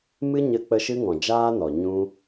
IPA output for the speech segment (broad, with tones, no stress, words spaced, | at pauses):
mɨ˦ɲə˧k͡pə˧ ʃɨ˦ŋɔ̃˨d͡ʒaː˦nɔ˨ ɲũ˦